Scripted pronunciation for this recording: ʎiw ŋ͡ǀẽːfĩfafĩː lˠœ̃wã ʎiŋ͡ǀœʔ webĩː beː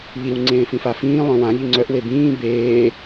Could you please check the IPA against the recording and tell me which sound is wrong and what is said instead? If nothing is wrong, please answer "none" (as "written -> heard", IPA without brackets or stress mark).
none